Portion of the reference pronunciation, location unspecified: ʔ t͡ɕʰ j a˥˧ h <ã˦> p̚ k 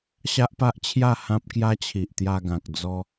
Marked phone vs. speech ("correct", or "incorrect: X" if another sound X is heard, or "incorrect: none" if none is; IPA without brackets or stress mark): correct